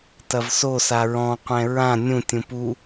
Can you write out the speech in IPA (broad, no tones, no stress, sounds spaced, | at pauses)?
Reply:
t ɐ v s o s a ɹ ɔ̃ qʷ ɛ̃ ɹ ã nʲ ũ tʲ ũ p u